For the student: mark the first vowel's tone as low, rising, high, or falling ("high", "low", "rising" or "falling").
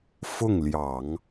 falling